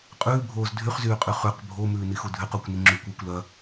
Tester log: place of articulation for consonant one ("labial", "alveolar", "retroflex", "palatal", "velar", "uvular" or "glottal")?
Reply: uvular